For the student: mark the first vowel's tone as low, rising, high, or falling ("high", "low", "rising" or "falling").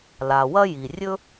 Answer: low